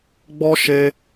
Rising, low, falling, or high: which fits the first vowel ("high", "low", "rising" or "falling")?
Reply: high